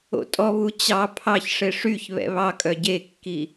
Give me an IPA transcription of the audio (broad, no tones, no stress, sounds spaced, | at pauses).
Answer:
o̰ tʼ ɔ β u t͡ɕ ɑ pʰ ɑ ç ʂ e ʂ y ç β ɛ̰ β ɑ kʼ œ ɟ e kː i